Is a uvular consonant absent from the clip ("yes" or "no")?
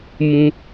yes